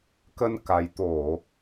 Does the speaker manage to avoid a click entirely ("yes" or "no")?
yes